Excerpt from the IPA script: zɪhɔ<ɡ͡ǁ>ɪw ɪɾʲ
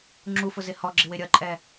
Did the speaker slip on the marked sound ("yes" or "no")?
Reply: no